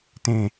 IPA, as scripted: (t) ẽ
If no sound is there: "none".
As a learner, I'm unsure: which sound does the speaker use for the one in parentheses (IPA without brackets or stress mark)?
t